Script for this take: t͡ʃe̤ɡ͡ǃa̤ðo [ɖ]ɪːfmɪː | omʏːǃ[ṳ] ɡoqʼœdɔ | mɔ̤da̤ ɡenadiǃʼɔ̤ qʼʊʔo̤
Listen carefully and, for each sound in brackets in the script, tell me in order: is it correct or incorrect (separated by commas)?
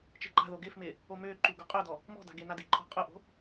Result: incorrect, incorrect